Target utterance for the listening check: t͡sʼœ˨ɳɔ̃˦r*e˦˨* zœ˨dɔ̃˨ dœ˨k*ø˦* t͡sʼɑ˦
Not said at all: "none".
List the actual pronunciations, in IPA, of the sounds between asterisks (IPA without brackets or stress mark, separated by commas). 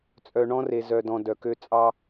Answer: e˨, ø˦